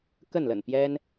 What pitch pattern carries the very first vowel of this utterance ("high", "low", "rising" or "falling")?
falling